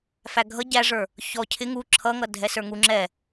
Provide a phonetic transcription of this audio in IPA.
f æ ɡʱ ʌ ɟ æ ʐ ə˞ | ç ɔ cʰ ɪ ŋ u ǁʰ ʌ ŋ ʌ dʱ ɛ s ə˞ ŋ u ŋ͡ǁ ɛ

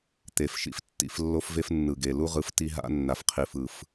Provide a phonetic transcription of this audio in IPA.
t̪ e˨ f ʃ ḭ˦ f tː ḭ˨ f lː o˦ f v e˦ f nː ɯ˨ ɡ e˨ l u˦ ʁ ɯ˨ f t i˦ ɦ a̰˦ nː a˨ f qʰ i˨ f ɯ˨ f

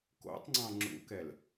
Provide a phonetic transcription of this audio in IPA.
k o̰ tˤ ŋ͡ǀ ɑ̃ ŋ͡ǁ ṵ k ɛ l

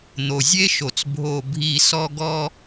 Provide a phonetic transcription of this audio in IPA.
n̪ o˨ zʲ e˦ ʃ o˨ t͡s bʱ o˦˨ bʱ i˦˨ s ɔ˧ ɡ ɔ˧

